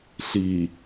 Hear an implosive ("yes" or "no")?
no